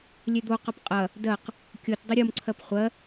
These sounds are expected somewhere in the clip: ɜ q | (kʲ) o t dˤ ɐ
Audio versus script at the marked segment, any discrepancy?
no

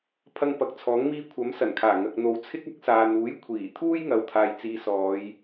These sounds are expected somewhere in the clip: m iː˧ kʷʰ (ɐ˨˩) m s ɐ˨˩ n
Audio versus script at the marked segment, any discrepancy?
yes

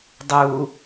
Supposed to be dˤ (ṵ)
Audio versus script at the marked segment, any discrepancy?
yes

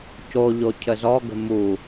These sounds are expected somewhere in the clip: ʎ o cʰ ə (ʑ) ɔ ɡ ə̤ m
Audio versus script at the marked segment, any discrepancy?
yes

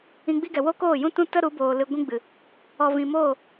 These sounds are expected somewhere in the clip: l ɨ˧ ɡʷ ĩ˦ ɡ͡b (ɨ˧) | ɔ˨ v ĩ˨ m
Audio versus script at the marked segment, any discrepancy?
yes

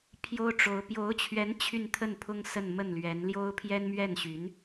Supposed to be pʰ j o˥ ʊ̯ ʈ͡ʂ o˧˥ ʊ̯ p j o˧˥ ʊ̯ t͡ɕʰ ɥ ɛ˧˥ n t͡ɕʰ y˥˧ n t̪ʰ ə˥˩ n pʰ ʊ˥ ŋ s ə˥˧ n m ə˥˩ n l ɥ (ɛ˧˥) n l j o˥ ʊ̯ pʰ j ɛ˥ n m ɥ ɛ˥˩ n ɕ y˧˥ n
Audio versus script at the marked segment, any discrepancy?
no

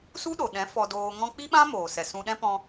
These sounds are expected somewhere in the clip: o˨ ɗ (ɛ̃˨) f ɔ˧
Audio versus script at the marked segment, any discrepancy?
yes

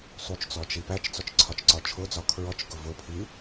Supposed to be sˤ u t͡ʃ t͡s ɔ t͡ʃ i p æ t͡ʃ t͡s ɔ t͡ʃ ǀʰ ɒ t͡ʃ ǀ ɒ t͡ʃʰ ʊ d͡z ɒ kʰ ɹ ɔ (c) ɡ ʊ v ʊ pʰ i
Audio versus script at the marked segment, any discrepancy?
yes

